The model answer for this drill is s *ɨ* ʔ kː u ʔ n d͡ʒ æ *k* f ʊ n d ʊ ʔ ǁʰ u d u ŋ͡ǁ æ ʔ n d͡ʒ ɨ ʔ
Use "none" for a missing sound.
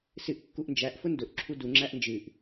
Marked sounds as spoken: ɨ, ʔ

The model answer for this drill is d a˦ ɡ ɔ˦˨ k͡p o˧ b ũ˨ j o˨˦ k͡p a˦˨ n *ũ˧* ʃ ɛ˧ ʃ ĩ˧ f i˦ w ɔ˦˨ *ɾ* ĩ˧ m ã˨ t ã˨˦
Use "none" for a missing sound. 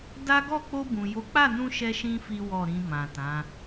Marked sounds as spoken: ũ˧, ɾ

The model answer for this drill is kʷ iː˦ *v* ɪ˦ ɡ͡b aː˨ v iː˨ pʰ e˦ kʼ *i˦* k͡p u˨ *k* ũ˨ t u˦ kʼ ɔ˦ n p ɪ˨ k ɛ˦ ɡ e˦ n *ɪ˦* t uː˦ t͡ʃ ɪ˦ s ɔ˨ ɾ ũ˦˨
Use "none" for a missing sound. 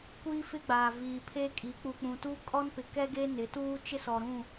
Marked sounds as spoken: f, i˨˦, k͡p, ɪ˨˦

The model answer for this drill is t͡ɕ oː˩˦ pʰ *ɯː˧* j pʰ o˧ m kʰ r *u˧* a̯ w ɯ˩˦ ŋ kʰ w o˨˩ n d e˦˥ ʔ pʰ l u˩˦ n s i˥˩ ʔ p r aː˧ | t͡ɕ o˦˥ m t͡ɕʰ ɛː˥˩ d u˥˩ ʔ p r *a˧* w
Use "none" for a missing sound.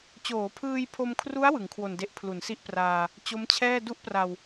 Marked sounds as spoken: ɯː˧, u˦˥, a˨˩

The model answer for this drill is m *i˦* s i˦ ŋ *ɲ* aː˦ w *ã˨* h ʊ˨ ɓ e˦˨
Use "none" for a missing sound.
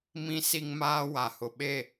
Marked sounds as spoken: ĩ˦, m, a˨

